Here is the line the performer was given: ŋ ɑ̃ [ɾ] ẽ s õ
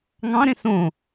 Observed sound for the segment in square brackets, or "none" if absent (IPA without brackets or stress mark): ɾ